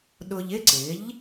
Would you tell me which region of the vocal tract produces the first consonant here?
tongue tip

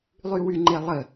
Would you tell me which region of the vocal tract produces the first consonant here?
tongue tip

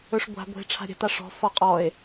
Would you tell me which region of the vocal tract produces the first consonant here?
retroflex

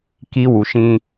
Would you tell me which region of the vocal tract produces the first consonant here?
velum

